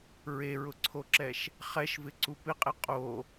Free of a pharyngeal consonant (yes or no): yes